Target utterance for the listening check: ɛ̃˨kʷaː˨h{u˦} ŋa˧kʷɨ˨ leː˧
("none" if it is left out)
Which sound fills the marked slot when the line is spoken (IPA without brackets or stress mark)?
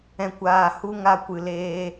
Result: u˧